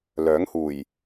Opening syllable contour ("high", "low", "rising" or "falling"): rising